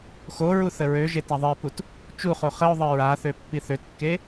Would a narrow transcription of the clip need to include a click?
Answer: no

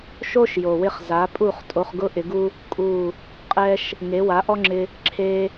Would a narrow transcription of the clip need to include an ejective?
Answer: yes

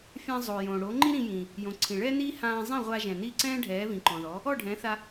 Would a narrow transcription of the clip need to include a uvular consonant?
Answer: yes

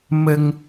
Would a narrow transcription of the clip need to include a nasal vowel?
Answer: no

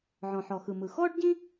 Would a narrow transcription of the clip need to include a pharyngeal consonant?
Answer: yes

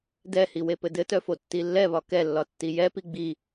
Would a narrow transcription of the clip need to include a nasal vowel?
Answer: no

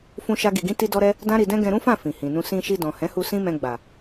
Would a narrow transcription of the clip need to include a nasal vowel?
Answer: yes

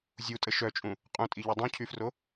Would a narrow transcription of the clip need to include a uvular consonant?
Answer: yes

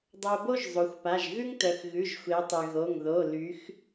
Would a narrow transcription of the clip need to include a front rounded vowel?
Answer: yes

